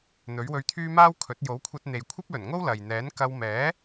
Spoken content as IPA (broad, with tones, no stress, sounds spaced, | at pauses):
n̪ ɵ˨˥ ɥ w ɵ˧ ɥ t̪ʰ yː˥ m aː˥ w kʰ ɵ˨˥ t̚ j o˨˥ w kʷʰ ɐ˧ t̚ n̪ e˨ j kʷʰ ɐ˥ p̚ l ɵ˨˩ n ŋ o˥ w l ɐ˨ j n̪ ɛː˨˥ n k ɐ˧ w m ɛː˨˥